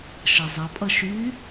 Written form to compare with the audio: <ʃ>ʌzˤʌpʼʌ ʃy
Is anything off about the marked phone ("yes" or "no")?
no